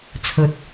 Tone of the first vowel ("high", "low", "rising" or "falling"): low